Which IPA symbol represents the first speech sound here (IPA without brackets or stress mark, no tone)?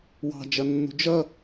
w